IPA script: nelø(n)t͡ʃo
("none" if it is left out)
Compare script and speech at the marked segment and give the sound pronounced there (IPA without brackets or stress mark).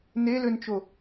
n